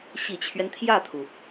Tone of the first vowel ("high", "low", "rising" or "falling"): low